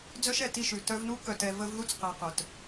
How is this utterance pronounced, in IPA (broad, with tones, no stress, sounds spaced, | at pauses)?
d͡z œ˥ ʃ ɛ˨ t i˦ ʃ ʉ˩ t œ˦ v n u˥ k œ˨ t ɛ˨ v ə˥ v ð u˥ t͡s q ɛ˨ q œ˩ t